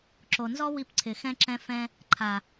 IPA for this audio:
ǁ o˨ n z ɔ˦ w i˧ p ǀʰ ɪ˨ x ɛ̃˧ ǁ ɛ̃˧ f ɛ̃˧ | ǃʰ a˨

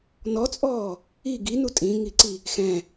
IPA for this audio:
n ɔ t͡sʼ ɔː | i ɡ i n u tʼ ĩ ŋ i ǀ i | x ɛ̃

